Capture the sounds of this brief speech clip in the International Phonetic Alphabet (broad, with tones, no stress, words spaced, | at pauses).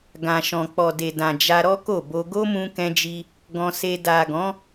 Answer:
ɡã˨ʃɔ̃˨k͡pɔ˨ de˨dã˨ d͡ʒa˧ɾɔ˦ko˦˨bo˧ ɡo˦mũ˧kɛ̃˧d͡ʒi˧ | ɡɔ̃˧se˧ da˨ɡɔ̃˨˦